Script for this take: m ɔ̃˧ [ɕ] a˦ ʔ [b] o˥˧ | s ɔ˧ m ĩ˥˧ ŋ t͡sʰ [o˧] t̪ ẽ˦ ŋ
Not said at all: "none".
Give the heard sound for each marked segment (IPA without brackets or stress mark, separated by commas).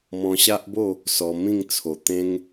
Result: ɕ, b, o˨˩